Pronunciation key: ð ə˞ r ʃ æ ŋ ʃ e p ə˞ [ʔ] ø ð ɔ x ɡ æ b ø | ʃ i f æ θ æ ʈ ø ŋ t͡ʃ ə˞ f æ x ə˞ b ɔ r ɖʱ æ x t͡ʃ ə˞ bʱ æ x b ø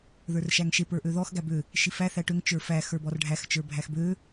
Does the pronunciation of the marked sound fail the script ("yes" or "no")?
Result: no